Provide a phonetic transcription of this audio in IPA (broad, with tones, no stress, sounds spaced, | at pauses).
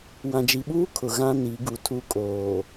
w ã˨ d͡ʒ i˨ ɓ uː˦ kʰ ʊ˨ ɣ ã˦ n i˨˦ ɡ u˨ tʰ u˦ kʼ oː˨